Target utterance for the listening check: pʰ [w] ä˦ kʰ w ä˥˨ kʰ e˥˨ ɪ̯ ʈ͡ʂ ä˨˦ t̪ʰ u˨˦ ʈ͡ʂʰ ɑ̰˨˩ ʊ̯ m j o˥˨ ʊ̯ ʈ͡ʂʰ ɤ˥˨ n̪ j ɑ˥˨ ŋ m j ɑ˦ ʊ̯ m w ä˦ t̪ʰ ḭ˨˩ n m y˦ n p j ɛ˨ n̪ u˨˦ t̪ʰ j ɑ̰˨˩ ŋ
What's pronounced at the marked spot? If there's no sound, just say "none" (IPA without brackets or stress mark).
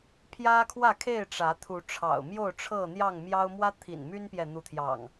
j